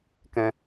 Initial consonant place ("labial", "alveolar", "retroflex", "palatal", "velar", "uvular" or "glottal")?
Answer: velar